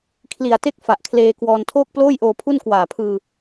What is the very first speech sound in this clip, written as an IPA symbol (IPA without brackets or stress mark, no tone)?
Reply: kʰ